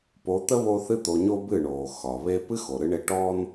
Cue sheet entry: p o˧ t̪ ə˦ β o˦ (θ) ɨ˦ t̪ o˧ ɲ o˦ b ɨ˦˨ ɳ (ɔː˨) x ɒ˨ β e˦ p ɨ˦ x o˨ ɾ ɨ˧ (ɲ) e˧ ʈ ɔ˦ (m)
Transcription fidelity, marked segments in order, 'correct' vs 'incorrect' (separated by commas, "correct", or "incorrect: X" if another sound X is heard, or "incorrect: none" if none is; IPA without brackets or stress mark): correct, incorrect: oː˨, incorrect: ɳ, incorrect: n